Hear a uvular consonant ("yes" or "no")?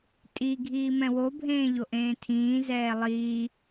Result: no